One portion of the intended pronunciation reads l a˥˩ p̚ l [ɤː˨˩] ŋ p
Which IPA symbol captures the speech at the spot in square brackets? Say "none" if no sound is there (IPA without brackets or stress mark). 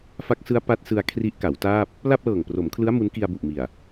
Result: ɤː˨˩